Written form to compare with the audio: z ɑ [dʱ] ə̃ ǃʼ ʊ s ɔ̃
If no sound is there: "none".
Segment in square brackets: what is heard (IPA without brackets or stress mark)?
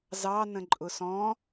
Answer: n